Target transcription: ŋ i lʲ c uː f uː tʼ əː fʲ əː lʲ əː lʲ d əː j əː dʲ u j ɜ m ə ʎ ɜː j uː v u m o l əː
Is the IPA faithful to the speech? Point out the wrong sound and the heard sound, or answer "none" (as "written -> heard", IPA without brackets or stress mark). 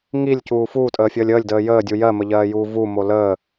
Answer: none